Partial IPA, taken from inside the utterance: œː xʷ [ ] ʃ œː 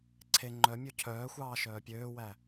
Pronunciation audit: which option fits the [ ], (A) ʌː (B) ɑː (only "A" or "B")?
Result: B